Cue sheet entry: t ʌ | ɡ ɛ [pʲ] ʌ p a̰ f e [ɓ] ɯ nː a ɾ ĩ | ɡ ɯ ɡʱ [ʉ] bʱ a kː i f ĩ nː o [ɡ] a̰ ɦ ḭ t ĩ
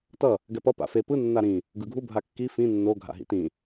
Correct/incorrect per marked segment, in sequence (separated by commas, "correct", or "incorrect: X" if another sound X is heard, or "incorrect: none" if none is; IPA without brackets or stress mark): incorrect: p, incorrect: p, incorrect: u, incorrect: ɡʱ